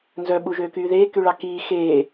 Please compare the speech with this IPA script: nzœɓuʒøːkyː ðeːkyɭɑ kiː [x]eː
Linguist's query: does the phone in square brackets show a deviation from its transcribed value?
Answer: no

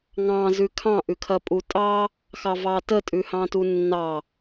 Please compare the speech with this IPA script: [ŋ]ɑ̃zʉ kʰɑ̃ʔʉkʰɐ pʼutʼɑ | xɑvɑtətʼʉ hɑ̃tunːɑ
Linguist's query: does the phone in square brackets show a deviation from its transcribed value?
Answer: no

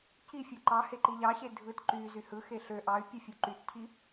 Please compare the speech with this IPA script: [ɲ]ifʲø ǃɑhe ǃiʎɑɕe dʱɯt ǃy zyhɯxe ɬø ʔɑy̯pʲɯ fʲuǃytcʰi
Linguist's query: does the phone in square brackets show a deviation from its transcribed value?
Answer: yes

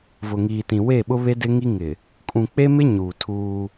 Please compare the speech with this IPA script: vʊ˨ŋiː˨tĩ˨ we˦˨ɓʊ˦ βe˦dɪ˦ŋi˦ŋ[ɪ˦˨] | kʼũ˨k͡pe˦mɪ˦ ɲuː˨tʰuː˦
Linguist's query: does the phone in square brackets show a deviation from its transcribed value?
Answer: yes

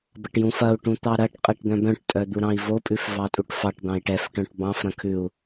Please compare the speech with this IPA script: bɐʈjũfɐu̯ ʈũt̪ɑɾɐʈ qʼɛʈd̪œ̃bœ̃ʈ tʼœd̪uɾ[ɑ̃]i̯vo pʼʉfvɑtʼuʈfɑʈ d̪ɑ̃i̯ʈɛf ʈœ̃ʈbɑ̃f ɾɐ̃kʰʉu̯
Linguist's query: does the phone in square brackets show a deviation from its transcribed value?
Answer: no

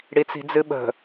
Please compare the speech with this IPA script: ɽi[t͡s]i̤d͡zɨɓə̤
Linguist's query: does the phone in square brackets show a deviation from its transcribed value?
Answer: no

